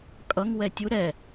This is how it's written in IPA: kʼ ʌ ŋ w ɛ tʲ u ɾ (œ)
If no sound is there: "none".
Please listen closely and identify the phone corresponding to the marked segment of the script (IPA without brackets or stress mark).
ɛ